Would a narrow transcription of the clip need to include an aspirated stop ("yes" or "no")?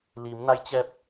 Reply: no